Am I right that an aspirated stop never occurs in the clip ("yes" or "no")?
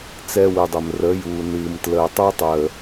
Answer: yes